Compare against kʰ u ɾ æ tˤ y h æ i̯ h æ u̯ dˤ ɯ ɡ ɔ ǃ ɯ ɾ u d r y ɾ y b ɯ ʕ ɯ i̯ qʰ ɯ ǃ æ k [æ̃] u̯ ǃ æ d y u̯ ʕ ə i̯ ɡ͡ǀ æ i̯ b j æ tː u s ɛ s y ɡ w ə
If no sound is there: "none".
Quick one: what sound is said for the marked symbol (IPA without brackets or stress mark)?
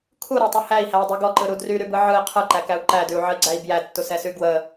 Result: æ